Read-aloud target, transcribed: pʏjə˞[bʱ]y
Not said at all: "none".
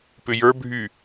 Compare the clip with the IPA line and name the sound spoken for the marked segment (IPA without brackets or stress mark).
bʱ